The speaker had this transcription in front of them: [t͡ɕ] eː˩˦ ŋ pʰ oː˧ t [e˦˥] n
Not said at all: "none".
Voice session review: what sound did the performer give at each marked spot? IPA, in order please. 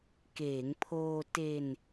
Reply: k, e˧

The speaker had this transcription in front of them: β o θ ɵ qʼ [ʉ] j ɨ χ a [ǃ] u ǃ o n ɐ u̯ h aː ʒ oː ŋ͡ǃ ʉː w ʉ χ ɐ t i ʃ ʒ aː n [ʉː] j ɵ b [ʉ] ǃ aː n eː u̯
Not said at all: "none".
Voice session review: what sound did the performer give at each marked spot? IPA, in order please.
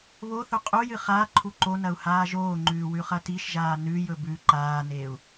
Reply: u, ǃʰ, ʉ, ʉ

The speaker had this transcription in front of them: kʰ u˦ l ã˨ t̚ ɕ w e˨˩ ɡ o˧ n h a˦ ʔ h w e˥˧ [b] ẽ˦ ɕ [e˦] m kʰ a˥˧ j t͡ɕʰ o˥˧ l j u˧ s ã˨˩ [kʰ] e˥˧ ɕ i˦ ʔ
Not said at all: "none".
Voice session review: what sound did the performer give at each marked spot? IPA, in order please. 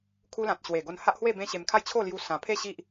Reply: b, e˧, pʰ

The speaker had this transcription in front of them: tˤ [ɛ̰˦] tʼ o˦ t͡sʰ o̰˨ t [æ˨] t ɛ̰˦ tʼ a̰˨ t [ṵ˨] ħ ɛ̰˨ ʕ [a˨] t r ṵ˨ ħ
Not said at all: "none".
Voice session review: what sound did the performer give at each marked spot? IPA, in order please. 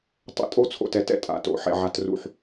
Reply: ɛ̰˦, ɛ˨, o̰˨, a˨

